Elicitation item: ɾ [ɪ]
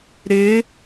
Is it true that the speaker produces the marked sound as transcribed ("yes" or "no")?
yes